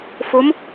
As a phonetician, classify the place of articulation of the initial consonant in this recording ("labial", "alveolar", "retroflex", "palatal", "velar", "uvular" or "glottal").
labial